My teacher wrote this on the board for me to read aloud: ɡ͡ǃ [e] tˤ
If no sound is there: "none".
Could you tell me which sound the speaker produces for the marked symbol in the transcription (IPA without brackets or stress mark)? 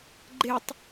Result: e